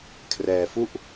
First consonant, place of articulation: velar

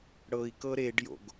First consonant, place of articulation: retroflex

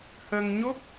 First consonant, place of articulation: glottal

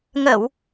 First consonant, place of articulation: velar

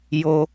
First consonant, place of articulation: palatal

